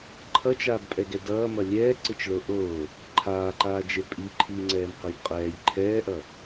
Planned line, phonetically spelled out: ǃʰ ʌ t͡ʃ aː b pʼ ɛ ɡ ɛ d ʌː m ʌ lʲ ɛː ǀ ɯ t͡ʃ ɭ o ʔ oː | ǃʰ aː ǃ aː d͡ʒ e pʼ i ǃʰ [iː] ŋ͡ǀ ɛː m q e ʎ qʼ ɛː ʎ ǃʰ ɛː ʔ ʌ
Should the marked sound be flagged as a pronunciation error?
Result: no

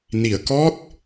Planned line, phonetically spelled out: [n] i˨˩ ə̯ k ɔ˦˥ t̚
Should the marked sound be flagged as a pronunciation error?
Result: no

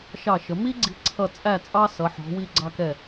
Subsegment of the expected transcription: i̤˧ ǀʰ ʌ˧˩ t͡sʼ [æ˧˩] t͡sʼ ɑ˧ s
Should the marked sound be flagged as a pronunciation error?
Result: no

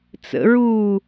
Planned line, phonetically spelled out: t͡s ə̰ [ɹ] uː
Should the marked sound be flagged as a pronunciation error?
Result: no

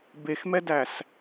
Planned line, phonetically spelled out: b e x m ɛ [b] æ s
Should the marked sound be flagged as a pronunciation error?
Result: yes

